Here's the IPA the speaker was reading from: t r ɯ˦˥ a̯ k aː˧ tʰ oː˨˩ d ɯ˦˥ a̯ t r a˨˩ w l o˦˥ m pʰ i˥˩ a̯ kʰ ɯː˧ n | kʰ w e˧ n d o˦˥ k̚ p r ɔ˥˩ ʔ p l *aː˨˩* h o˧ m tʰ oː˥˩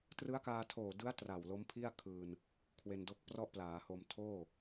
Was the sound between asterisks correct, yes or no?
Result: no